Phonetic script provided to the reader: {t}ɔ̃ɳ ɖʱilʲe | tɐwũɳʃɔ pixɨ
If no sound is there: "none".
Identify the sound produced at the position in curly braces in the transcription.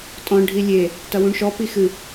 tʼ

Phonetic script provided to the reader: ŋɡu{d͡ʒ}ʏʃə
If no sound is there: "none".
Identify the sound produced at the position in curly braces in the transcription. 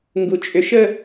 t͡ʃʼ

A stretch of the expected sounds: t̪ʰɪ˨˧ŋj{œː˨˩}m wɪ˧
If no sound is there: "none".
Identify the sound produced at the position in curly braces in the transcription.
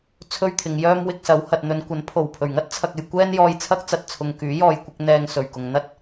œː˥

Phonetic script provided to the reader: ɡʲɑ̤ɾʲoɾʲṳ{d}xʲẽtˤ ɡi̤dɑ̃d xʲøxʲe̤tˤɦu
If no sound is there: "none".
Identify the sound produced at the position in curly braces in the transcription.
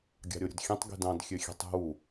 d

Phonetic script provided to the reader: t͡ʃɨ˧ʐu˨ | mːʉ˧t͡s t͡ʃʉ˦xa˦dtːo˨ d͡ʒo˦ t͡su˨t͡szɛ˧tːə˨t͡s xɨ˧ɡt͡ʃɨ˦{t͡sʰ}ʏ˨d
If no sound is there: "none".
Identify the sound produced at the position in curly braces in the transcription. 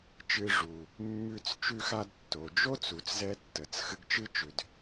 t͡ʃ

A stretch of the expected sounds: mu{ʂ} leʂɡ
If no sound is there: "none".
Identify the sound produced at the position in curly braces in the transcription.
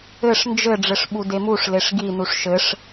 ʂ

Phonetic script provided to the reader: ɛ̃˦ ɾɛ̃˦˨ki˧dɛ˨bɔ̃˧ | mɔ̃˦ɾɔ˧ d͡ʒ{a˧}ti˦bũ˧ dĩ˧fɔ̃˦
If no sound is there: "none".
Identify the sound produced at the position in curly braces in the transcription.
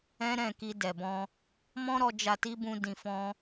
a˧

